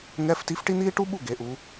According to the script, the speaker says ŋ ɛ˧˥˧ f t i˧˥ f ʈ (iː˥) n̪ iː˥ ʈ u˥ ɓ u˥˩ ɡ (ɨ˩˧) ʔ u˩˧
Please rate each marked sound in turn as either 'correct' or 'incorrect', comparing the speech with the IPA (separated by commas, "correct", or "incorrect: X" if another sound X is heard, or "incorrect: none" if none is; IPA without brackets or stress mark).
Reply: incorrect: i˥, incorrect: e˩˧